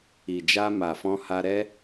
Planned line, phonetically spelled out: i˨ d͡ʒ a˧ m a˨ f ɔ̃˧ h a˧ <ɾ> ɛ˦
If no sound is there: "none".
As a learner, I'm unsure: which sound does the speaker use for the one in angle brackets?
ɾ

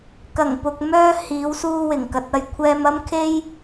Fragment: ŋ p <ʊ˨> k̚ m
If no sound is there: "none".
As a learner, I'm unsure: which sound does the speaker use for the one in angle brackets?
ʊ˨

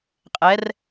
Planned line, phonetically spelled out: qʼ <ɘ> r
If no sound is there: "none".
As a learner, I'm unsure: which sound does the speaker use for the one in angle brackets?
ɛ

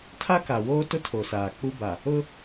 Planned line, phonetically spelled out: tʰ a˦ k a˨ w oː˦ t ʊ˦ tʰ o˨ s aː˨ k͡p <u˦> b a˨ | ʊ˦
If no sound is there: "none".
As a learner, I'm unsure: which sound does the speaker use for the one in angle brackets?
u˦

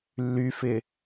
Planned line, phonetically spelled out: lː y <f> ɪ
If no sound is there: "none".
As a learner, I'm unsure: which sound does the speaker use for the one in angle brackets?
f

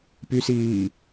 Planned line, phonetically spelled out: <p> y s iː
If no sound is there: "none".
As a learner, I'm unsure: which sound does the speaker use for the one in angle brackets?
p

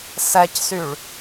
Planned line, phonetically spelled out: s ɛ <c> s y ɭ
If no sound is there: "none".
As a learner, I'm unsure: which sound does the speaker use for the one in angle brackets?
c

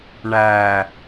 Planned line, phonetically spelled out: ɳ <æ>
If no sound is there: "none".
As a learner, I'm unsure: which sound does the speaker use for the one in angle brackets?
æ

